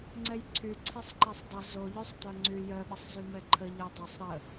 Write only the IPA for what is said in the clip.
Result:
ŋ͡ǀ ɛ j ǀʰ y ǀʰ ɛ sˤ ǃ ɛ sˤ dˤ ə z o ʎ y sˤ t œ ŋ͡ǀ y j œ ɓ ə sˤ z y m ɛ ǃʰ ə ʎ ə j dˤ o sˤ ɾ ə

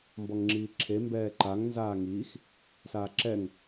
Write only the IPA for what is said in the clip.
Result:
m b ɔ ŋ ŋ͡ǁ iː ǁʰ e m b ɛː ǃ a ŋ n z aː ŋ iː x | s aː ǁ ɛ ŋ

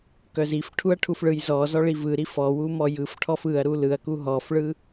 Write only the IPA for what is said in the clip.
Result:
k œ z i f ʈʰ u ɐ̯ ʈʰ u f ɭ ɯ j z ɔ z ɔ ɭ i v ɯ ɾ i f ɔ w u m ɔ j ɯ f ʈʰ ɔ f ɯ ɐ̯ ɾ u l ɯ ɐ̯ k u ɦ ɔ f ɭ ɯ

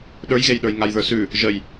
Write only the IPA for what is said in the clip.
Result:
ɗ ə˞ j ɣ e j ɗ ə˞ j ŋ a j ð ə˞ s ʉ | ʒ ə j

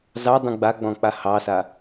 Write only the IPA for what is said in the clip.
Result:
z ɑ dˤ ũ ɡ͡b a ɡ͡b ɔ̃ k͡p a h ɑ s a

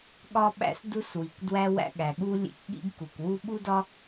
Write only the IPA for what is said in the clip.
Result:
ɠ ɒ˥ ɓ æ̰˥ s d u˥ s w i˩ k d w æ˥ w æ̰˥ ɠ æ˩ ɠ u˥ lʲ ḛ˥ k ɠ ḭ˥ ɡ k u˩ k w u˥ ɓ u˥ d ɒ˥

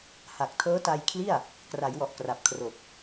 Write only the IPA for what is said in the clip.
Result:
h a˨˩ k̚ tʰ ɤː˦˥ t a˧ j kʰ l i˥˩ a̯ | k r a˩˦ j w ɔ˨˩ ʔ k r a˨˩ p̚ kʰ r o˨˩ k̚

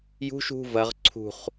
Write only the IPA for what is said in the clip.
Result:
j ṳ ʃ ṳ v ɐ ʁ ǀʰ ṳ χ

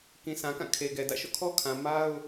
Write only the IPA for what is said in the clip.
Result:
k ĩ˨ sʰ ã˨ k ã˦˨ kʰ e˨ ɡ ɛ˨ d ä̰˦˨ ʃ o̰˦˨ kʰ ɔ˦ kʰ ã˨ m a˦ ʊ̯

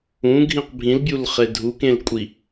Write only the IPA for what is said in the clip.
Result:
ũ ɡʱ ĩ q bʱ ĩ l bʲ u l χ e dʱ u k ẽ l kʷʼ i

